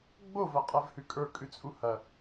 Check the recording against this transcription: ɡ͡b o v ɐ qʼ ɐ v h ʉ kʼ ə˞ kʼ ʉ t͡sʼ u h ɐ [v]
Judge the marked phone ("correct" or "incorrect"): incorrect